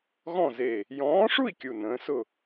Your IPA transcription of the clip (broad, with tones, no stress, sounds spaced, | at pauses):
ɣ ɔ̃˥˨ z e˧˩ | j ɔ̃ː˨˥ ʂ u˥˨ i̯ kʲ u˧˩ n ə̃ː˨˥ s ʊ˥˨